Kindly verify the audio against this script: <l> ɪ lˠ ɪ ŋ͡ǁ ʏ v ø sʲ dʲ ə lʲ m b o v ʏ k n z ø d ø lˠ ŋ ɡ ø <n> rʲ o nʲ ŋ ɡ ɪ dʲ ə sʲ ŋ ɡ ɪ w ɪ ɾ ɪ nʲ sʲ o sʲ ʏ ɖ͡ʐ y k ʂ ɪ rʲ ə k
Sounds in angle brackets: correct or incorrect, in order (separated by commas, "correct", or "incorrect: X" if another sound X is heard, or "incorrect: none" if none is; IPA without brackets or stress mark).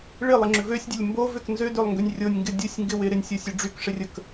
incorrect: ɭ, incorrect: nʲ